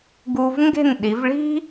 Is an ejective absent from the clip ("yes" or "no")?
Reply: yes